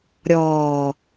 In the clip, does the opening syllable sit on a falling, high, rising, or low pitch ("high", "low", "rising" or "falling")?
low